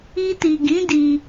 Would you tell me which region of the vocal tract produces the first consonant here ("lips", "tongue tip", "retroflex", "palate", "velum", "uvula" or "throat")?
tongue tip